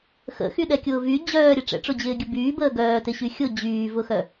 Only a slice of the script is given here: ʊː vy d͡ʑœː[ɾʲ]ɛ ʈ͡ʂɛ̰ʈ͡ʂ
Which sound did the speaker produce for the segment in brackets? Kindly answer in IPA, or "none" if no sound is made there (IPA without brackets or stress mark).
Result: ɾʲ